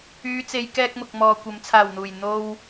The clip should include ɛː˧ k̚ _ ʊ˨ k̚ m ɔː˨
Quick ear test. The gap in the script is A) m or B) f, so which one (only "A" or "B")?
A